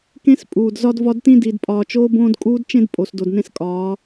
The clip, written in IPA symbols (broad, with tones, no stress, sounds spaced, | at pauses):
k ẽ˦ s pʼ uː˨ d z ɒ˦ d v ɒ˦ d t ĩ˦ d i˨ d pʼ ɒː˨ t͡ʃ oː˦ b õː˦ d kʼ uː˦ d t͡ʃ ẽ˦ d pʼ o˨ s d o˨ d n ẽ˦ s kʼ ɒː˨˦